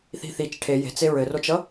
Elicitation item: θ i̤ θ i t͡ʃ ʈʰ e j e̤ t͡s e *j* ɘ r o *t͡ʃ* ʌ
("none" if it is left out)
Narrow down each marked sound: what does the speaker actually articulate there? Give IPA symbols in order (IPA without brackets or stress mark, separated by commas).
ɹ, t͡ʃ